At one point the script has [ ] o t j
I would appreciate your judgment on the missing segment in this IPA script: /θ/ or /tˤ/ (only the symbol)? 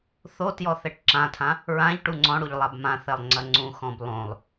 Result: θ